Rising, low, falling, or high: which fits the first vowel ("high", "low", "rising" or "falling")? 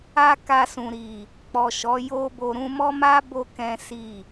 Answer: high